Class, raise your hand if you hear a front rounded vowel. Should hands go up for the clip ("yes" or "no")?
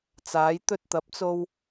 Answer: no